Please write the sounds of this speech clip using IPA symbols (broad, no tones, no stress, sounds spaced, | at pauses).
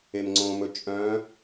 e m ŋ͡ǀ õ m ɵ t͡ʃʼ œ̃